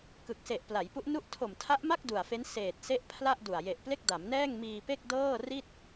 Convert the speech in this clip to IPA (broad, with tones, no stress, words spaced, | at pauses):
kɯ˨˩k̚se˨˩ʔpla˩˦jpu˦˥ʔ nu˦˥ʔtʰo˨˩mtʰa˦˥ʔma˥˩k̚ du˨˩a̯fe˦˥n seː˨˩t̚se˦˥ʔ pʰla˥˩ʔdu˨˩a̯ je˨˩ʔple˥˩k̚ da˩˦m nɛː˥˩ŋmiː˧ pe˥˩k̚ dɤː˥˩ ri˥˩t̚